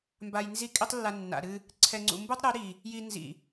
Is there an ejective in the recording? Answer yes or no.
yes